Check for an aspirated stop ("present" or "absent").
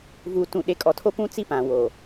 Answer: present